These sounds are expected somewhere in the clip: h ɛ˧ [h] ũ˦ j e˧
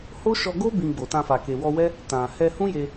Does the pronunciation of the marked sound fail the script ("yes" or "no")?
no